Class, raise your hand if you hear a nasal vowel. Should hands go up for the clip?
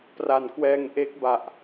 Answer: no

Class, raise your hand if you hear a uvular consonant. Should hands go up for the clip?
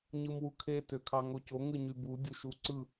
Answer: no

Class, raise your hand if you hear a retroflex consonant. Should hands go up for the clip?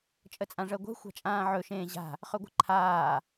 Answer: yes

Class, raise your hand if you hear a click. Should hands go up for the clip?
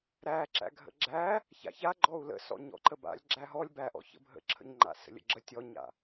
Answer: yes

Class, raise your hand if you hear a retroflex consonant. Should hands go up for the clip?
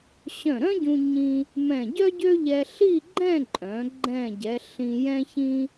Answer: no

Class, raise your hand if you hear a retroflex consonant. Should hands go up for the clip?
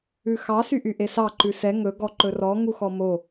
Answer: no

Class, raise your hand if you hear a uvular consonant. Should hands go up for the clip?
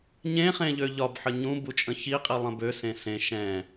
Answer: yes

